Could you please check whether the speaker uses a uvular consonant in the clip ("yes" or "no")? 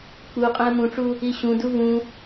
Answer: yes